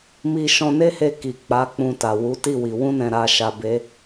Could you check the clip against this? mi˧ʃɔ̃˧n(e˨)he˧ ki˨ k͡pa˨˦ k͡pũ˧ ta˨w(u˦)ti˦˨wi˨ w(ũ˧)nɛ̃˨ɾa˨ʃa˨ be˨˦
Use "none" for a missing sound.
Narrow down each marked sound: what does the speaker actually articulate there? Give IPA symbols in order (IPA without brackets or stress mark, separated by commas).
e˦, u˨˦, ũ˧